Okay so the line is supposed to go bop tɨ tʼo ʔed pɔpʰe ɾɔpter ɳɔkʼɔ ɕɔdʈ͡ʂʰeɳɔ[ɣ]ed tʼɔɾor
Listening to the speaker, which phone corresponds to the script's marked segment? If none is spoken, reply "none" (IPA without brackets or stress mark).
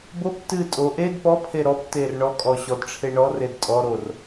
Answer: r